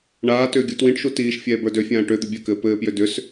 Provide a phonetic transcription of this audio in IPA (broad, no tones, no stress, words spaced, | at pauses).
ɳaːtʏː ɡʲutwĩʈʃu tiːʃfʲɛː bə˞døfʲãː ʈʏ d̪ʏbʲɘkɘː pɘːpjʏ dʏs